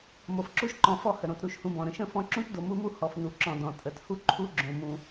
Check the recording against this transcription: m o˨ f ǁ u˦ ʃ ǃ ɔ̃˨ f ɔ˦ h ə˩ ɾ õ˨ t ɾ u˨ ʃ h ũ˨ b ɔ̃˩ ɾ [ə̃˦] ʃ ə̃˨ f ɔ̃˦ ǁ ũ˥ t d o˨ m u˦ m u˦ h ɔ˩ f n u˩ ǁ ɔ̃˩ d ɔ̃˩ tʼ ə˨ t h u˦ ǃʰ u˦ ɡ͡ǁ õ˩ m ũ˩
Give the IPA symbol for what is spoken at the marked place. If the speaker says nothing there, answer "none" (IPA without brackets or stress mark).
ə̃˦